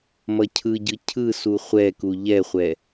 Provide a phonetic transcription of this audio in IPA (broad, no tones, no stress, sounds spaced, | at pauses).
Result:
m ʌ cʰ ɯ ɟ ɯ cʰ ɯ s u χʷ ɛ k u ʎ ɛ χʷ ɛ